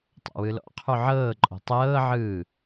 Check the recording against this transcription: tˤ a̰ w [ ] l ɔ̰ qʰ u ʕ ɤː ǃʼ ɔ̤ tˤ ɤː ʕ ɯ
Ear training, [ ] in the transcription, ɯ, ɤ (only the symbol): ɯ